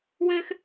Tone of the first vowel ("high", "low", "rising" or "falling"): high